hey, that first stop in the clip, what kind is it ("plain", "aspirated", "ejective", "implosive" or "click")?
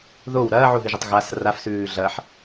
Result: plain